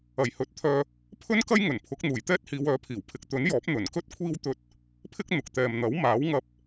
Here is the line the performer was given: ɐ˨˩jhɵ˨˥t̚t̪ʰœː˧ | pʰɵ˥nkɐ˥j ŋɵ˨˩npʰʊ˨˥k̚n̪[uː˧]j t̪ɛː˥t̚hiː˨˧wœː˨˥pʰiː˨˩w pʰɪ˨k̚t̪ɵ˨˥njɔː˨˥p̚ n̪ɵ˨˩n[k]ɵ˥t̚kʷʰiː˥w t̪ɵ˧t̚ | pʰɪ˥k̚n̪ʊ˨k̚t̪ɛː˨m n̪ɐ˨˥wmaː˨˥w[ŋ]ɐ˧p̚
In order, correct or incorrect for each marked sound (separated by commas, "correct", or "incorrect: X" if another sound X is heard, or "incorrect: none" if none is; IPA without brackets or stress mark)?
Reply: incorrect: uː˨˩, correct, correct